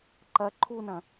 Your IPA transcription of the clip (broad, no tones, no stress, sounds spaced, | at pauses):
ǃ ɐ ǃʰ u n ɐ̃